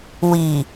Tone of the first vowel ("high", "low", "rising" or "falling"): low